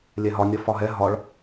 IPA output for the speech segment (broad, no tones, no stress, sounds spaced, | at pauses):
lʲ ɛ ɦ ɒ nʲ ʌ f ɒ ɦ ɛ ɦ ɒ ɭ